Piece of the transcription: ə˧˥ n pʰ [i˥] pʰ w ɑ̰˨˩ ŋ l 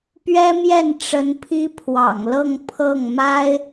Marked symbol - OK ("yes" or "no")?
yes